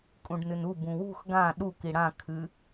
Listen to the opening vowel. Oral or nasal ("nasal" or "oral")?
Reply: nasal